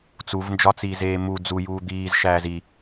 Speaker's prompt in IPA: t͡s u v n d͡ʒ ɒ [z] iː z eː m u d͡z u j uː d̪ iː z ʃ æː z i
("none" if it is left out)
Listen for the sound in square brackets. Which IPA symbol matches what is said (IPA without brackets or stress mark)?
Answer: t͡s